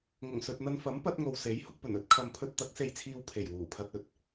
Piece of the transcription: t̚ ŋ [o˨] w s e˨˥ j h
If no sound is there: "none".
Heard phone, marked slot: o˨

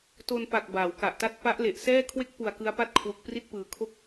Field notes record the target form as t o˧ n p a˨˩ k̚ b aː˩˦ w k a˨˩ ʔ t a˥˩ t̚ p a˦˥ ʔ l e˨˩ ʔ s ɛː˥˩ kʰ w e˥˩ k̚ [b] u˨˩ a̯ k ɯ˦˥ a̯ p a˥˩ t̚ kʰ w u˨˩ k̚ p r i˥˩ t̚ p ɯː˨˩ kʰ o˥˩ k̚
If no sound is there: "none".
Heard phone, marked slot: p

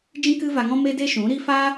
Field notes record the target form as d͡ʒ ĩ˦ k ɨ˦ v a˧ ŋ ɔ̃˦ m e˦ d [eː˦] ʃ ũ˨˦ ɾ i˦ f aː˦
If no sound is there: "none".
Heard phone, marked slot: e˦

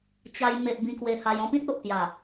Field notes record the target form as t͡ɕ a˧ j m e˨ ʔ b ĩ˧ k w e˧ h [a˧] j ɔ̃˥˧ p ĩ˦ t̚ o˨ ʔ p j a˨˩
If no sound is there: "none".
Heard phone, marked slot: a˧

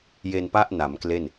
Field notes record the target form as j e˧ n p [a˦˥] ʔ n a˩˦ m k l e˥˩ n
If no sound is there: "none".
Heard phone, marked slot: a˥˩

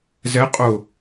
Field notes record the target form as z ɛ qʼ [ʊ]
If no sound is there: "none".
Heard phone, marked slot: ʊ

